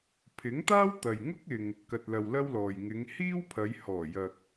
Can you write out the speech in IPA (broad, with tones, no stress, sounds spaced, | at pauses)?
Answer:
pʰ ɪ˨˥ ŋ t̪ aː˥ w t̪ ɐ˨ j ŋ ʊ˥ k̚ ɪ˨ ŋ | k ɐ˨ t̚ l ɐ˨ w l ɐ˥ w l ɔː˨ j ŋ ɪ˨˧ ŋ h iː˥ w pʰ ɐ˨˧ j h ɔː˨˩ j ɐ˨ k̚